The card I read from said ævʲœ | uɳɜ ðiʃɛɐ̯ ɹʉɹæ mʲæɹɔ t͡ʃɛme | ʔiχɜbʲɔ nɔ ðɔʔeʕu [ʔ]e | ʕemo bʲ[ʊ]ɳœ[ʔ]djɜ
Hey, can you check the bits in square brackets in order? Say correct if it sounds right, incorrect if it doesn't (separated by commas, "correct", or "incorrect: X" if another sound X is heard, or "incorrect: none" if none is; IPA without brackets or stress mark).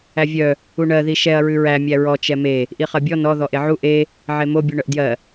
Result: correct, incorrect: u, correct